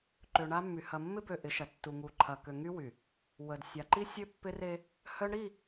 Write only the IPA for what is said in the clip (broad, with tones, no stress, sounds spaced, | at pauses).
ǃ ø˨ ɳ a˦ mː y˨ h ɐ˨ mː ɪ˦ b ø˨ ʔ ɪ˨˦ ʃ ɐ˨ tː u˨ ŋ u˨ ǃʰ ɐ˨ k ø˨ ŋ y˦ w y˨ | w ə˨ d sʲ a˨ ǃ i˦ sʲ ø˦ pː ɪ˦ r e˦ | h œ˦ ɳ ɾ i˦˨